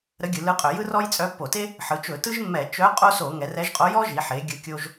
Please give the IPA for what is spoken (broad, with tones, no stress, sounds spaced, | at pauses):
ɾ ə˧˥ ɡʲ ɯ˩˧ l ɯ˧˥ qʼ œ˧˩˧ j ɯ˥ r ɔ˥ j t͡sʼ œ˧˥ pː o˧˩˧ t e˥ | ħ ɯ˩˧ t͡ʃ ɵ˧˩˧ t ɯ˥ ʒ mː ɛ˧˩˧ t͡ʃ œ˧˥ qʼ o˥ s o˧˩˧ ŋ ɛ˩˧ r ɛ˧˥ ʒ qʼ o˧˥ j ɔ˥ ʒ i˩˧ ħ e˩˧ ɡʲ ɯ˧˥ kʲ o˥ ʒ